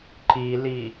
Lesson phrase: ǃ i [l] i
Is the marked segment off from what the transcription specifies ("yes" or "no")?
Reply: no